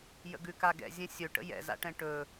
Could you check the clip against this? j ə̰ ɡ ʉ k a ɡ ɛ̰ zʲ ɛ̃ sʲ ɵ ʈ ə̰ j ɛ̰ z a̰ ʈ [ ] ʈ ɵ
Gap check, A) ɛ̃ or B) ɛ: A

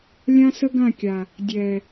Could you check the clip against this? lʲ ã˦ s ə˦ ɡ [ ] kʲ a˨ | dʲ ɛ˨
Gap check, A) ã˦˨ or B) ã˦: A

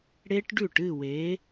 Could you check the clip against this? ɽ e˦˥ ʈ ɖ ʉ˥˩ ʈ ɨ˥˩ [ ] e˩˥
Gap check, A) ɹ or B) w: B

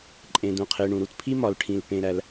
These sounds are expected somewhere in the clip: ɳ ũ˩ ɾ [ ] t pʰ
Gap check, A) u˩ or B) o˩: A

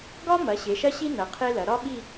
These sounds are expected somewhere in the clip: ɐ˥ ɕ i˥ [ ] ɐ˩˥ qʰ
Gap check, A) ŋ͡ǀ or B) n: B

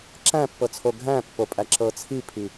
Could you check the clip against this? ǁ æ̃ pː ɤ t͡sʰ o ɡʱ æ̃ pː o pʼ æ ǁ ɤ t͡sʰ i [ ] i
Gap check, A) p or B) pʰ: B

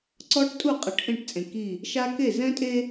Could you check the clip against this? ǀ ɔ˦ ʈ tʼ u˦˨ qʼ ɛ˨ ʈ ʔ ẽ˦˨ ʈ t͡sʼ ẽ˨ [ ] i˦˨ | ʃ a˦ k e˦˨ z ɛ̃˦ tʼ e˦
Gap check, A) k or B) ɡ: A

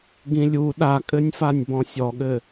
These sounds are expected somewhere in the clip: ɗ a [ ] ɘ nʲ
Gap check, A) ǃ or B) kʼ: B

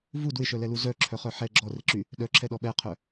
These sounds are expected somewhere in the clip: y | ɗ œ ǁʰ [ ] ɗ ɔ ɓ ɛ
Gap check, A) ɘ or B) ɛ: B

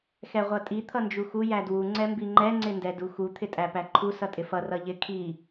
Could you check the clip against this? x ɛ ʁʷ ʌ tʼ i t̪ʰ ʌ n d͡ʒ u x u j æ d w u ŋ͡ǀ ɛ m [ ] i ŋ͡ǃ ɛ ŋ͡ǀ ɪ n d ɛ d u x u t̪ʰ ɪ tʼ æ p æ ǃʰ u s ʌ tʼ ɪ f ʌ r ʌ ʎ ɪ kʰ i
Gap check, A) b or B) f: A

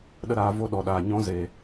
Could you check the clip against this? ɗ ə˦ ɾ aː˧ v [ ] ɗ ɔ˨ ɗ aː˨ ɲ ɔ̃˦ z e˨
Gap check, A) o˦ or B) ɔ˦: A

